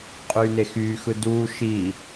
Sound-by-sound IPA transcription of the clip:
qʼyːnexyː xɯduː ʃi

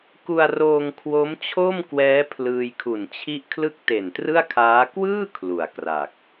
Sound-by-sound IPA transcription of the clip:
ku˧a̯roː˧ŋ kʰwo˦˥mt͡ɕʰo˥˩mkwɛː˦˥ pʰlɯː˧jkʰu˨˩nt͡ɕʰi˥˩ʔ kʰlɯ˥˩k̚te˨˩ntrɯ˥˩a̯kʰaː˦˥ kwɯː˥˩ kʰlu˨˩a̯kra˨˩k̚

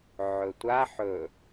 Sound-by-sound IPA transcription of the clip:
ʕɵtʷa ħɵ

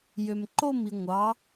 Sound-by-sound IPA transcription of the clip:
jømǃomi ŋʷɑ

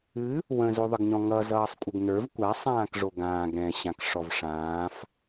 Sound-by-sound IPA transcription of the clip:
ɨ | wə̃zoðˤəɡɲɔ̃ ŋʌ zʌːsˤkʷʼɪɡnə˞v kʷasˤ ãːkʐoɡãːɡ ɾɛ̃ɕãk ʂɔvʂãːf

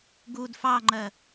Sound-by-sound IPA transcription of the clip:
ɡud fɑŋ͡ǃɜ

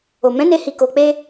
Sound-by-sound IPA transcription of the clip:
o˨mɛ̃˨˦ne˧ hi˧ko˧k͡pe˦

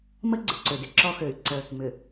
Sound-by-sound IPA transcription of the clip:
mə˦ ɡ͡ǀɪ˨ǀø˨dɪ˨˦ ǁɔ˦xø˨y̯ǀə˦ | mʏ˨

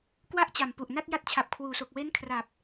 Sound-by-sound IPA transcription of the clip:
kwa˥˩ʔt͡ɕa˨˩mpu˨˩ʔna˥˩t̚ ja˦˥t̚t͡ɕʰa˨˩p̚kʰwuː˨˩so˨˩k̚ we˦˥n kʰra˨˩p̚

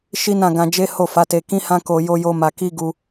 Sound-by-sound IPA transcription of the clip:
ʃi˦nã˦˨ ɡã˧ d͡ʒe˦ ho˦˨fa˨˦te˧ kĩ˦hã˦ ko˧ jo˦jo˦ ma˧ki˦ ɡu˧

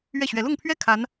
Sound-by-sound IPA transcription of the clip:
ɥɛ˥˩ɕɥɛ˧˥ lʊ˥˧ŋpʰɥɛ˥˩ kʰa˧˥n

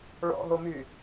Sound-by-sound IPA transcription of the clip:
ɭɔ̰ɦomy

